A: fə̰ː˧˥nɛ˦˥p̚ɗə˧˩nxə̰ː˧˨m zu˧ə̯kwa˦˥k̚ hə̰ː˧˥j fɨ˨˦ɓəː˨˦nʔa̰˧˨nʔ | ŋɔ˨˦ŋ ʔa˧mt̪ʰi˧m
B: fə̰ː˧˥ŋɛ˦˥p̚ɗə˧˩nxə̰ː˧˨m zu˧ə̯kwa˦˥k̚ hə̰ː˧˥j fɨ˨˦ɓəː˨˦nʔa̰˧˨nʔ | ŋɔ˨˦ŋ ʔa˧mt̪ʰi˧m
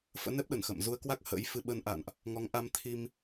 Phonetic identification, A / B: A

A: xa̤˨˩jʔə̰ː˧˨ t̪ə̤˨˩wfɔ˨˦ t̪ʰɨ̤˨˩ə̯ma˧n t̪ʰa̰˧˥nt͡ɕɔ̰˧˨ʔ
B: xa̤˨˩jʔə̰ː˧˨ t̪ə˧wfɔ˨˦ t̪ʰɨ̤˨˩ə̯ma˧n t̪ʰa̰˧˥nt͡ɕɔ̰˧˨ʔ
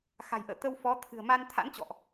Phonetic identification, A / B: B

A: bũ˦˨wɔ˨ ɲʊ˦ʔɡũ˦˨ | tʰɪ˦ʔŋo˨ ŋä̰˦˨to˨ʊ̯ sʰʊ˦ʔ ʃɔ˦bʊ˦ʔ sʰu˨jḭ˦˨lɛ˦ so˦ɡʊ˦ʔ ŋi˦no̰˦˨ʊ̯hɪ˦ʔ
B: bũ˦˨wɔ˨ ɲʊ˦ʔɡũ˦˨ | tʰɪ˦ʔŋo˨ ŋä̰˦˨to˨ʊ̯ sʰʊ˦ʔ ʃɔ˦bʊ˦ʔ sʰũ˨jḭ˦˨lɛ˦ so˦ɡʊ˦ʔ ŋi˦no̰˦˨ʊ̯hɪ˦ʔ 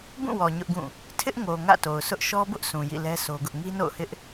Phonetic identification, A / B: B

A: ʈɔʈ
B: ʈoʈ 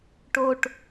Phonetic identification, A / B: B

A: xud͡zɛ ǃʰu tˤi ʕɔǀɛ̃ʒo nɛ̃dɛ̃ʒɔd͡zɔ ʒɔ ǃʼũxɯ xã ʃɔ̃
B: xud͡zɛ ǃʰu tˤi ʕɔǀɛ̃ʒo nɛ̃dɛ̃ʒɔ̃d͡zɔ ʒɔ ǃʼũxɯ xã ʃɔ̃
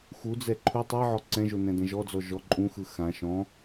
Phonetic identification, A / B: A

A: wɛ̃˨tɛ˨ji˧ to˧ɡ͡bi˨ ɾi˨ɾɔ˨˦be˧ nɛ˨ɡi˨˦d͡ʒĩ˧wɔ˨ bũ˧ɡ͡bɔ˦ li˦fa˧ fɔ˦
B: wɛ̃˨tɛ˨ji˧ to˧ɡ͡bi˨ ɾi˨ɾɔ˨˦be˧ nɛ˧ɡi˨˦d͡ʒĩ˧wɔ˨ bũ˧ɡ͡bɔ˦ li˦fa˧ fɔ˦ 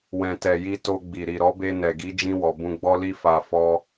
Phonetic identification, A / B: A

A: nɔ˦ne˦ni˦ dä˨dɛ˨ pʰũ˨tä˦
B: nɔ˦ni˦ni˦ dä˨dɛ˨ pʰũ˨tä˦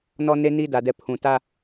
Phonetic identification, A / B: A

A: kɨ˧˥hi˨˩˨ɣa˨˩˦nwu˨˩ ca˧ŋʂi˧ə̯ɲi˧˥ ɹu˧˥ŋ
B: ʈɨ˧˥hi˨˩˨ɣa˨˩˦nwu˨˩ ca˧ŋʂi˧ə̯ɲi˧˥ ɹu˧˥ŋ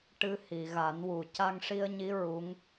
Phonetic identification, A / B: B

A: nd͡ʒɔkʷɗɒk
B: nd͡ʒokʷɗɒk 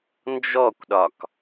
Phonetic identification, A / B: A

